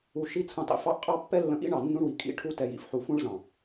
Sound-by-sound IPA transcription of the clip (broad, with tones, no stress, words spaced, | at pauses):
u˧ ʃi˦t͡sʰũ˧tˤḭ˧ fɑ˦ʔqʼɑ˦ pːɛ˦lːə̃˧ʔḭ˦ɳɑ˨ nːũ˦ɳwi˨ kʼḭ˦ ʈʰu˧tɛ˨jḭ˧f ħu˨fũ˧ɭzɑ̃˨